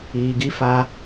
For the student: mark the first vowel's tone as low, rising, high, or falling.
low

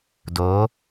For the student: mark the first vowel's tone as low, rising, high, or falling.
rising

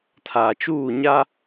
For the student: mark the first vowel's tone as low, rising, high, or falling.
low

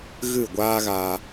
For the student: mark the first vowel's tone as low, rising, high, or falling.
falling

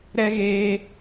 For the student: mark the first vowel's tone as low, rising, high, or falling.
high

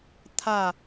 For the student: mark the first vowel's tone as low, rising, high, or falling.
falling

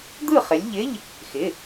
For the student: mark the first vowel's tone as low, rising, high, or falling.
falling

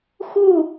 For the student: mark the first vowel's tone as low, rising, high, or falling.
falling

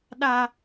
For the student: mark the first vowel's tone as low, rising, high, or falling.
high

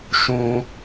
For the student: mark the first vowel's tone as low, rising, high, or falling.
high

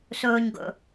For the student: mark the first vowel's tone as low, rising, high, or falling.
low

